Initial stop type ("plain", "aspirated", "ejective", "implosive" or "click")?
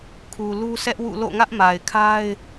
aspirated